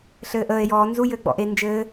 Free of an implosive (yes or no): yes